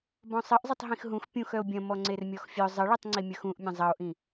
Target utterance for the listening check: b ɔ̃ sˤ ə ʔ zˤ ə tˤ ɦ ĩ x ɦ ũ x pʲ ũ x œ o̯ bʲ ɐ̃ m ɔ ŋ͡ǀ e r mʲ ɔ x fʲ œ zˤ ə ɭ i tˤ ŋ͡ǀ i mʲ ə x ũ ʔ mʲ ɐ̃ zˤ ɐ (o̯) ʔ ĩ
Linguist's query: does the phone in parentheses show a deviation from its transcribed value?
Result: no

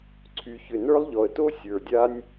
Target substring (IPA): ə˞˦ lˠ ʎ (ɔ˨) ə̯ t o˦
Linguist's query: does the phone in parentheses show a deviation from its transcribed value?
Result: no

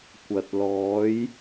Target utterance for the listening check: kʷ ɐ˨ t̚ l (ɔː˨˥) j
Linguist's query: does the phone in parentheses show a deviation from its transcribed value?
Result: no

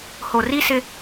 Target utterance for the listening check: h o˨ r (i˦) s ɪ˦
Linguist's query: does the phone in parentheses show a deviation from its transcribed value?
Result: no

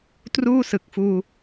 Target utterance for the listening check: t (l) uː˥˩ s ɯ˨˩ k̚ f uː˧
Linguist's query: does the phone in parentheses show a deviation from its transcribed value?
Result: yes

